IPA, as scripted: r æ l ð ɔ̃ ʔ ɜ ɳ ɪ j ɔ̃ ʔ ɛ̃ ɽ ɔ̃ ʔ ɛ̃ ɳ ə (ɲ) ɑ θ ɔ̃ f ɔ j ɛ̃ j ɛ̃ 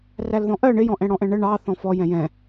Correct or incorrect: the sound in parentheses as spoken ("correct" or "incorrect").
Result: incorrect